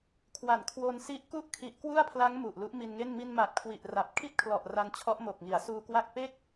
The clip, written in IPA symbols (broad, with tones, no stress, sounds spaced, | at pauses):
kʰ w a˨˩ n kʰ w o˧ n s i˦˥ ʔ k u˥˩ ʔ kʰ i˨˩ ʔ k w u˥˩ a̯ pʰ l a˦˥ ŋ m u˨˩ ʔ l u˦˥ ʔ m i˧ n ŋ e˥˩ n m i˧ n m a˨˩ t̚ kʰ w i˨˩ ʔ r a˨˩ p̚ kʰ i˥˩ t̚ kʰ l ɔ˨˩ ʔ r a˧ n t͡ɕʰ ɔ˦˥ ʔ m o˨˩ k̚ ŋ i˩˦ a̯ s uː˧ k w a˥˩ k̚ p e˥˩ k̚